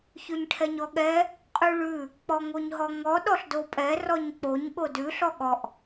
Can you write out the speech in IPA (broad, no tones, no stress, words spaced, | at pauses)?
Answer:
çʉɲʈʰɛɲɔɠɛ | qʼʉɭʉ | k͡pɔŋoɲɦɔŋɔ ɗɔɬdopʼɛ rɔɲk͡poɲ ɠodʉ ɬɔɠɔʔ